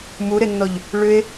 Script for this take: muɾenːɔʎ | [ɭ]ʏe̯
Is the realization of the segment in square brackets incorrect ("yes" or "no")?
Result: no